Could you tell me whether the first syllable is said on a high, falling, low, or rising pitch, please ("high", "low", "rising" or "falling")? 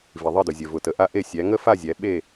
low